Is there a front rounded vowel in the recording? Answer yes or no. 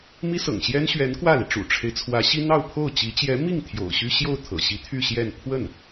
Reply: yes